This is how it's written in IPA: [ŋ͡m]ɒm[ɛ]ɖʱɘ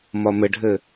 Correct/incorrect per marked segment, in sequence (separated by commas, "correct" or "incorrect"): incorrect, incorrect